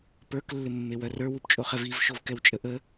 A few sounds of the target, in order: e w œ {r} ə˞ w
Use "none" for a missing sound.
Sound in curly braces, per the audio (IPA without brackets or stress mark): r